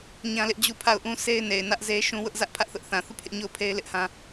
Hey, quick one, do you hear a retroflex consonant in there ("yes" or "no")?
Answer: no